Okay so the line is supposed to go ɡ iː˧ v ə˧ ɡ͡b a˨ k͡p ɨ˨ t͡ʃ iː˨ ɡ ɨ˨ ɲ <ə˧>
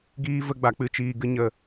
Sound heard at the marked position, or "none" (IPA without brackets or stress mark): ə˨